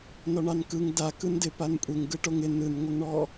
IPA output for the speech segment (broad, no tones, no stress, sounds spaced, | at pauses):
n ɔ ɳ ɑ n k ɯ ŋ d a k ɯ n d ɪ p a n kʷʼ e ŋ ɡ ɯ ʈ o ŋ ɪ n ɯ n ŋʷ ɪ ŋ ɳ ɔ